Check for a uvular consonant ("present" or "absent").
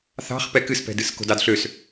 present